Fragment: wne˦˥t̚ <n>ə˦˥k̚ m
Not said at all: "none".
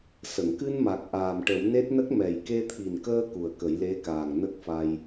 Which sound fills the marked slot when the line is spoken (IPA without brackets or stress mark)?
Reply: n